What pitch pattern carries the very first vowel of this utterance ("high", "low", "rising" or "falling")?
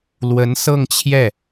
rising